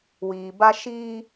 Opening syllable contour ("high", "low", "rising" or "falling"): low